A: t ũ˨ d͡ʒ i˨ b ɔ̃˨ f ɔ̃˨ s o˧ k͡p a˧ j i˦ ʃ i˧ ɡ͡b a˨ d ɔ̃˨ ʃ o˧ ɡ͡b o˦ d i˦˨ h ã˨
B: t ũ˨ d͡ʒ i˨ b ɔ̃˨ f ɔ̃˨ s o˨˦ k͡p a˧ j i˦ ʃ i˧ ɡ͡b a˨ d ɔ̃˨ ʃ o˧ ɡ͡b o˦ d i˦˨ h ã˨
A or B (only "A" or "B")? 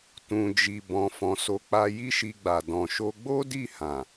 B